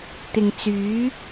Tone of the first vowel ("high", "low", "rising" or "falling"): low